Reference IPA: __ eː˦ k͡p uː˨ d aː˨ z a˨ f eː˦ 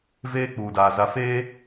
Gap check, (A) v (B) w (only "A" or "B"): A